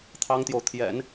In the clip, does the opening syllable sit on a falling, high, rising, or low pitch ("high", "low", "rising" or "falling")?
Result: high